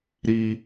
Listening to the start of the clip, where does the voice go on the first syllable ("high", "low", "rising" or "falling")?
high